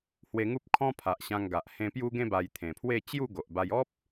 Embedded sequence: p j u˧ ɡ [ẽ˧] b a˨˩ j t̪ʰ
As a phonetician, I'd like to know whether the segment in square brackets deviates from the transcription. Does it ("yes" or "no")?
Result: no